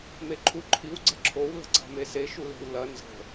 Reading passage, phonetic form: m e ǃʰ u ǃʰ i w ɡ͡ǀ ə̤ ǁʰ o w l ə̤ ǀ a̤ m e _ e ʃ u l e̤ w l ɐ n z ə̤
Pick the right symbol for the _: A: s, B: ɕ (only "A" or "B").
A